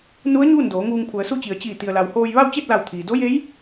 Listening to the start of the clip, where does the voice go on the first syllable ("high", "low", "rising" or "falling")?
rising